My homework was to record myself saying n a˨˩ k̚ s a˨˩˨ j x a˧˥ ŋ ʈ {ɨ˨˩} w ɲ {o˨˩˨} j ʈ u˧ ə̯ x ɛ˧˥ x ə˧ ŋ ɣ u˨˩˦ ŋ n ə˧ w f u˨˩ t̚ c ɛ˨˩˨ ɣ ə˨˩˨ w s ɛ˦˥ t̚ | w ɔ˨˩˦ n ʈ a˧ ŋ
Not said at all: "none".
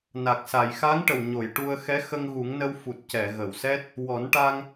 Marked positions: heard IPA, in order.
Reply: ə˨˩, o˨˩˨

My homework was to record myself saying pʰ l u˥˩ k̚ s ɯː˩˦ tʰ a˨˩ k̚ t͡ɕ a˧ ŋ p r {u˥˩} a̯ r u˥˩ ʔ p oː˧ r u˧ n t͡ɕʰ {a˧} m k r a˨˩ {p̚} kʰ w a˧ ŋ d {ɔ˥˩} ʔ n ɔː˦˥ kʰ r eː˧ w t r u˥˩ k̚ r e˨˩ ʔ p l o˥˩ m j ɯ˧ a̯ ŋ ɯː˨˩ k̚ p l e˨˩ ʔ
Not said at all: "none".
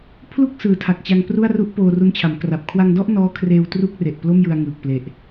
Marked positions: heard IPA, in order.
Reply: u˥˩, a˩˦, p̚, ɔ˥˩

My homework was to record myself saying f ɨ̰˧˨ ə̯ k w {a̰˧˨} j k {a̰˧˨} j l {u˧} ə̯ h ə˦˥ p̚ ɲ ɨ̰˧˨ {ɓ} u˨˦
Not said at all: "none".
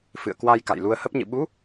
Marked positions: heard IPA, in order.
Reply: a˧, a̰˧˨, u˧, ɓ

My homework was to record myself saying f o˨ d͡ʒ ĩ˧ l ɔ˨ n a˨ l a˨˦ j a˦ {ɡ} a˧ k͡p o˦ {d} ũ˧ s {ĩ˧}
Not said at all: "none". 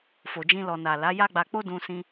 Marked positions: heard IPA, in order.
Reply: ɡ͡b, d, ĩ˧

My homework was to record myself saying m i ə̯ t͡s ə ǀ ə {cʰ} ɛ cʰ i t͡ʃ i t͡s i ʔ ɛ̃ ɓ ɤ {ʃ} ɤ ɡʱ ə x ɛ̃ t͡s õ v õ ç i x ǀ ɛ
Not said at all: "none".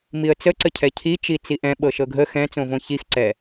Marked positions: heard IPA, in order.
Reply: cʰ, ʃ

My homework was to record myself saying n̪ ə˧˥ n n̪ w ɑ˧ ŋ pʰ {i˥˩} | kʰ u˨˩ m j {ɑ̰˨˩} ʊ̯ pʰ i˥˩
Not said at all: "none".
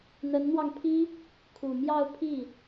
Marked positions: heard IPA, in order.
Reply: i˥, ɑ˥˧

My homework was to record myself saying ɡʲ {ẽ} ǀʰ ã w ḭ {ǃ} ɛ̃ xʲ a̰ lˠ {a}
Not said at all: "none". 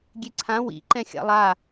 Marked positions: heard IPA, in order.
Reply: e, ǃ, a

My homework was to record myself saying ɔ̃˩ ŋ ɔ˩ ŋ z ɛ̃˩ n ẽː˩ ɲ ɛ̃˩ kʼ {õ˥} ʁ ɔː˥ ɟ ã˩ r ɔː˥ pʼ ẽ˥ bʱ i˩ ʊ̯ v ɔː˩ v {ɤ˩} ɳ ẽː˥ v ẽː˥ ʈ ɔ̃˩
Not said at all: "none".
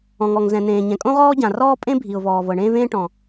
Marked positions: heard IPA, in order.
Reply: õ˥, ɤ˩

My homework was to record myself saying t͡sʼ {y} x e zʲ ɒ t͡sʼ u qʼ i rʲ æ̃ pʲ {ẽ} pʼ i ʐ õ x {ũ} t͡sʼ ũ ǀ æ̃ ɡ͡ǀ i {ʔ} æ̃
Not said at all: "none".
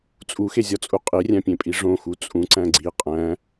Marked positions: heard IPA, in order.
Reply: u, ẽ, u, qʼ

